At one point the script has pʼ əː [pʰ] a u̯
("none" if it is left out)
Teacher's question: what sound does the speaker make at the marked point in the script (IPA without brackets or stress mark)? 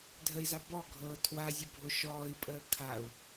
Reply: kʰ